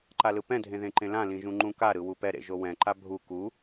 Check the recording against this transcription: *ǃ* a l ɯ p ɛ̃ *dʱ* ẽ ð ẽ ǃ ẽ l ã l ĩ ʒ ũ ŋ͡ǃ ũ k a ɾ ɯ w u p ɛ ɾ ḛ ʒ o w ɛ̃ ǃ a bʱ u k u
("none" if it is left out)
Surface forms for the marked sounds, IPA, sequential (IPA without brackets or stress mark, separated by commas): ǃ, dʱ